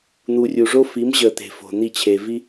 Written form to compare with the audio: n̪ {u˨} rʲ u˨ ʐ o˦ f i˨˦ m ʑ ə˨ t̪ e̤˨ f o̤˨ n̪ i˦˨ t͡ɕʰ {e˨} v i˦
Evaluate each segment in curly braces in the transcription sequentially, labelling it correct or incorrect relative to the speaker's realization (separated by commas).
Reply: correct, correct